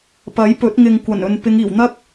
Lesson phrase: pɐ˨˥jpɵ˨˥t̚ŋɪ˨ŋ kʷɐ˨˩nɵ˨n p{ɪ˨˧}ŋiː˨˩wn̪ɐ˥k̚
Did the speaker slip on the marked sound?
no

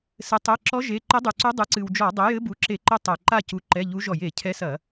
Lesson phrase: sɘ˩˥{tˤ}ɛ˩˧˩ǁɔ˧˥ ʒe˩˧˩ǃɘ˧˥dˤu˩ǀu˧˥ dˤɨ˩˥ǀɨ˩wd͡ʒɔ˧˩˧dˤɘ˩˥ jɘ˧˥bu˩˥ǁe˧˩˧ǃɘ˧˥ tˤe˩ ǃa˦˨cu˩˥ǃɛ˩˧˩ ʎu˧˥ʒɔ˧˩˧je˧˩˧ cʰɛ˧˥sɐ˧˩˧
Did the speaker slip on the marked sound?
no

